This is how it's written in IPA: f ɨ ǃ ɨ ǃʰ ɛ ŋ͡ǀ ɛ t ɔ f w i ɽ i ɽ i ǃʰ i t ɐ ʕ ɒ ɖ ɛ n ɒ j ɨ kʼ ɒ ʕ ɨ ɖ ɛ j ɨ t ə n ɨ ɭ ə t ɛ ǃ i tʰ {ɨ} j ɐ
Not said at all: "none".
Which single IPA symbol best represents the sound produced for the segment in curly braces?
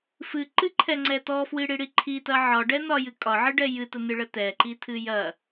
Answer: ɨ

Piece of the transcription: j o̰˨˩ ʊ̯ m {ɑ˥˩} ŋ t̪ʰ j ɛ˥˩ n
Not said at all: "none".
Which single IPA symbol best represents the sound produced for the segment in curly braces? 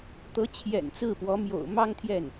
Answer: ɑ˥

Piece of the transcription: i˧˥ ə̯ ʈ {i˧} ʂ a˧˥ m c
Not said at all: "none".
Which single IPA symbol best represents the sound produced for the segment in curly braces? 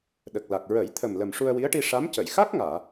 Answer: i˧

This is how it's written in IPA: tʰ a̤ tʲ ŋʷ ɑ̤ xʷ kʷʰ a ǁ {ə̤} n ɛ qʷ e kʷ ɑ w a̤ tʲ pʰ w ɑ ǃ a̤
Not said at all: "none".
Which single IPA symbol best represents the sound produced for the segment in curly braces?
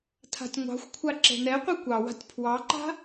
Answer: ɛ̤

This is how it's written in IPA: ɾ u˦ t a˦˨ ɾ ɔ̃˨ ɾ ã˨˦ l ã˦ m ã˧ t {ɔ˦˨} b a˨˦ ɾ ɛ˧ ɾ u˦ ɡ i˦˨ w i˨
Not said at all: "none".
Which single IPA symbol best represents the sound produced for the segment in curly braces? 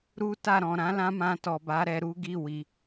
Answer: ɔ˨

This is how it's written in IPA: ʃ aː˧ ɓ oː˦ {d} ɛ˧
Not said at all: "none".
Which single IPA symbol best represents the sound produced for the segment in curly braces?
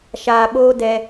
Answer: d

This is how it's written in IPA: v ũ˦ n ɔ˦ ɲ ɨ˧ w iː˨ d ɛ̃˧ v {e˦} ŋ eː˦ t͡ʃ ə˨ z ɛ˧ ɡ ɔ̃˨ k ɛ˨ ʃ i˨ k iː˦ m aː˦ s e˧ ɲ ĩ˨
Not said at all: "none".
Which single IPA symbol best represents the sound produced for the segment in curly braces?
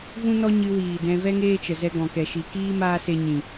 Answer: ɛ˦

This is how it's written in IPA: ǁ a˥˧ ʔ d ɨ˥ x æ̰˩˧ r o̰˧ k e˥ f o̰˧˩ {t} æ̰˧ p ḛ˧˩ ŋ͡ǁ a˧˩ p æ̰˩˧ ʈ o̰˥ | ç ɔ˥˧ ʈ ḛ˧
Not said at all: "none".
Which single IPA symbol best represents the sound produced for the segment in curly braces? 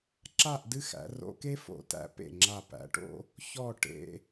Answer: t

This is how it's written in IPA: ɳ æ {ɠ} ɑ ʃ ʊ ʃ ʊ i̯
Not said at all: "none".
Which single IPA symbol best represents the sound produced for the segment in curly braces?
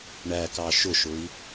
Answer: k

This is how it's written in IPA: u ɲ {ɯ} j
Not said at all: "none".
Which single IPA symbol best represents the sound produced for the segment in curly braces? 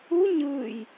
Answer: ɯ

